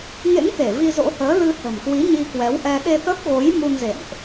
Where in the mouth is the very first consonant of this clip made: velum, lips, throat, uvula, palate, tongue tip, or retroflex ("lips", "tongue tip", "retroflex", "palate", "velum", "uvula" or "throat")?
velum